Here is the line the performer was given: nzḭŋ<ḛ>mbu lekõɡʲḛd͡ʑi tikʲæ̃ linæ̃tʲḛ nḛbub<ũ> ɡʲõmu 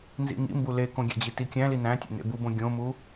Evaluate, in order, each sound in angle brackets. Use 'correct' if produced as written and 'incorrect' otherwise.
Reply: incorrect: ḭ, incorrect: õ

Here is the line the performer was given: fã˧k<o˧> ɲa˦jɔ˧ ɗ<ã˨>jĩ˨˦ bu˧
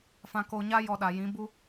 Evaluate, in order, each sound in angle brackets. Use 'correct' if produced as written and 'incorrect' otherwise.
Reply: correct, incorrect: a˨

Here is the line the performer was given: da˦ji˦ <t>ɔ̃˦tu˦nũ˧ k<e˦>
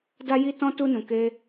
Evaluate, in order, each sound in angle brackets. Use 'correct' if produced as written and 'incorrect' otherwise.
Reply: correct, correct

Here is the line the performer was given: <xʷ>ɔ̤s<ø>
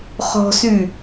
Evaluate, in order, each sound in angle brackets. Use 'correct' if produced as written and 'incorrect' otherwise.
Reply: incorrect: χ, incorrect: y

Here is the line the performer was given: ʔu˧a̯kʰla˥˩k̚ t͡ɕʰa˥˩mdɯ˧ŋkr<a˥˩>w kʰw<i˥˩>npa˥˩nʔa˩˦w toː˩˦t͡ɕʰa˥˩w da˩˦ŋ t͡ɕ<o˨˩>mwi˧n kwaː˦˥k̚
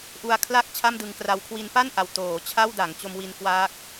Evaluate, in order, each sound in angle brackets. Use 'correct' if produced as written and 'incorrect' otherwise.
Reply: incorrect: a˦˥, incorrect: i˧, incorrect: o˧

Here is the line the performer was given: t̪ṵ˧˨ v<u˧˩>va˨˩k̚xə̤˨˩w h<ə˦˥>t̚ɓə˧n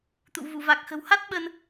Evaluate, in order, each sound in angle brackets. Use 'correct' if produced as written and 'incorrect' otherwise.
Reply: correct, incorrect: a˦˥

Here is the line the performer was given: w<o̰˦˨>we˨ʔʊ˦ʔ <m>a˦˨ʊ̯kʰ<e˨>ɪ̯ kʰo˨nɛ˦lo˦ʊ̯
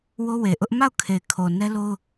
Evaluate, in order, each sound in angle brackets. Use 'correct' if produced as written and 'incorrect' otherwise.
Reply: incorrect: o˦, correct, correct

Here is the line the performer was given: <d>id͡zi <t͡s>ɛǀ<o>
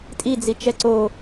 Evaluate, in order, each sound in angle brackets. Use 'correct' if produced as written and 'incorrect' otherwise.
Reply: incorrect: tʼ, incorrect: t͡ʃ, correct

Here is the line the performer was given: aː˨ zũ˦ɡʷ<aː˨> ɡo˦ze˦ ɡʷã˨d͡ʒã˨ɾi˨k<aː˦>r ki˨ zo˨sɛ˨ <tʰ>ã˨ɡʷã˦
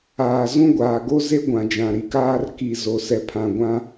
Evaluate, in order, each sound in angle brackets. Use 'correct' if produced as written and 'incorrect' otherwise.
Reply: correct, correct, incorrect: pʰ

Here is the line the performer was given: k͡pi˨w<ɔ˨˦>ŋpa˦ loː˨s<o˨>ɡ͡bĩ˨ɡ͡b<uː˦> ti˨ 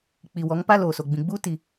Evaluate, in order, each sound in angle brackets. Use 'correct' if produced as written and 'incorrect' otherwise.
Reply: correct, correct, correct

